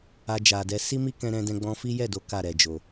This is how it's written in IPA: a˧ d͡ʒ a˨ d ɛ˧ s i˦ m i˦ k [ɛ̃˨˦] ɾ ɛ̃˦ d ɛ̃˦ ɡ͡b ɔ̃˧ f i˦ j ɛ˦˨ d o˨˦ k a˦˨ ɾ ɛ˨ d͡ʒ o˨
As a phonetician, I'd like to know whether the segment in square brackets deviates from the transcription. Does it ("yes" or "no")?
yes